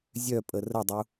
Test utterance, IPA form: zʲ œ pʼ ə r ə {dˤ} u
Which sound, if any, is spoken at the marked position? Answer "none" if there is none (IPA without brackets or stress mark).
dˤ